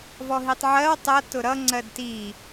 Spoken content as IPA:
v ɔ ɦ i tˤ ʕ ɜ w tˤ ʌ t ʊ ɾ ʌ ŋ͡ǀ ɜ d t i

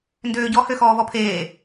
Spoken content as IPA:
n d øː ɟ ɔ h ø x ɔː v ɔ pʰ eː

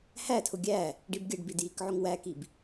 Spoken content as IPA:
h æ tʰ ʊ ɡʲ æ | ɖ i b ɡʲ ə ɖ b i d j i k ʕ ʊ ŋ w æ k i b

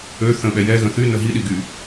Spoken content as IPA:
ø θ ə̃ ɓ ɛ j ɛ ɣ ə̃ θ y n ə ɦ i ɗ i ɡ y

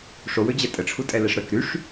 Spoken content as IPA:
ʂ o w ø d͡ʑ ɛ tʼ ə ʈ͡ʂʰ u tʼ ɛ l ɛ ʂ ɾ œ k ɾ y ʂ

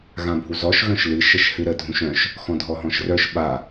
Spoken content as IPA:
ɣ ã bʱ u z ɔ ʃ ɣ œ̃ ʃ l ɨ ʃ ə ʃ h ɨ ɾ ə dʱ ũ ʃ œ̃ ʃ | x ɔ̃ dʱ ɔ ɦ ɔ̃ ʃ r œ ʃ ɓ a

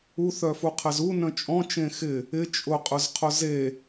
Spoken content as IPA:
u θ œ f u qʰ ɛ z u n œ̃ t͡ʃʼ ɔ̃ t͡ʃ ẽ x ɪ | ɪ t͡ʃʼ ʊ qʼ ʊ z qʰ ʊ z e

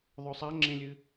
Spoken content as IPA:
ðˤ ɵ sˤ a ŋ͡ǁ ẽ lʲ ɨ

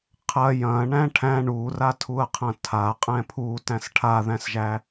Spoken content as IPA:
qʰ ɐ j ɐ̃ ɳ æ̃ ʈʰ æ̃ ɳ u r a tʰ u ɐ̯ qʰ ɐ̃ tʰ a qʼ ɛ̃ pʰ u t æ̃ s ʈʰ a ð æ̃ s ʒ æ

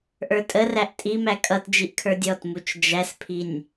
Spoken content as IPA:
ʔ ə˞ tʼ ə r æ ʔ tʼ i m æ kʼ ʌ t d͡ʒ i ʔ kʰ ə˞ dʲ ɔ t m u t͡ʃ d͡ʒ æ s pʰ i nʲ

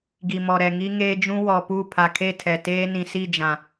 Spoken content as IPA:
ɡ i˨ m ɔ˨ ɾ ɛ˨ ŋ i˦ ŋ eː˦ d͡ʒ ũ˦ w ɔ˨ p u˦˨ pʰ a˨ kʰ e˦˨ tʰ ɛ˨ t eː˦ n ĩ˨ s i˦˨ d͡ʒ ã˨

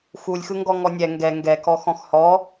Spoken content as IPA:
x u lʲ x ɯ ŋ ɡ ɔ ŋ ɔ nʲ ɛ ŋ ɡ ɛ ŋ ɡ ɛ k ɔ x ɔ̃ x h ɔ

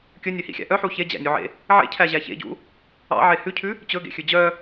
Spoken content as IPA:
kʲ ɵ nʲ ø h ḭ xʲ æ̰ ʔ œ ħ u ç e d͡ʑ æ̰ nʲ u ʕ ḛ | ʕ ḛ cʰ æ ʑ æ ç ḛ ɟ ṵ | ɑ̰ ʕ e h ʉ cʰ ʉ | t͡ɕ ɵ ɡ ḛ xʲ ʉ d͡ʑ œ

